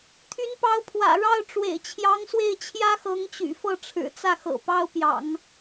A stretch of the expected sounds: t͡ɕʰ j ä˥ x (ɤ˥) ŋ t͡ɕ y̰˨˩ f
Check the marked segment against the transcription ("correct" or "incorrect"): incorrect